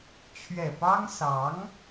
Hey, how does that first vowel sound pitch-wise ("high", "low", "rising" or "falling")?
low